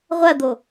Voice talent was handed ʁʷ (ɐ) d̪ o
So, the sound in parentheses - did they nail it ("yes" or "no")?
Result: yes